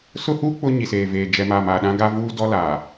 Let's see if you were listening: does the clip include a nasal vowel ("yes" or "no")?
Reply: yes